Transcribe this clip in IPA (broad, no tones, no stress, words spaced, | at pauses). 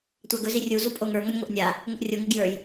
tʷaɡɵ zirʲu zupʼoŋə˞ ŋɔnʲŋʷə˞ʔnʲa | ŋʷɘʔrʲo ŋɘɡjə˞j